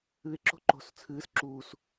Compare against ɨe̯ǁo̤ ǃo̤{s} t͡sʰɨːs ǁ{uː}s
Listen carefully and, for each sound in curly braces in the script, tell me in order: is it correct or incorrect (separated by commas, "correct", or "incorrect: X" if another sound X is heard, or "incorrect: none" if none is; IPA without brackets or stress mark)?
correct, correct